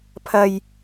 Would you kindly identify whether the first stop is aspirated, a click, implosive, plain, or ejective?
aspirated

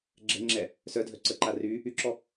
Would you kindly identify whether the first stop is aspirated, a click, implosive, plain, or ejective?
click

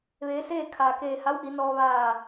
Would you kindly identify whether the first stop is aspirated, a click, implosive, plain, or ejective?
aspirated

